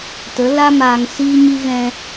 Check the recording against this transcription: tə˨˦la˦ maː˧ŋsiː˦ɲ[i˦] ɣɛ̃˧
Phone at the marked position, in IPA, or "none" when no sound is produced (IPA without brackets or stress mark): i˦